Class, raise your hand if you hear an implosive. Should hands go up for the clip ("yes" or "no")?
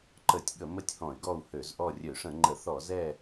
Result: yes